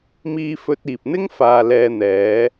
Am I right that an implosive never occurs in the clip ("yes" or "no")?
yes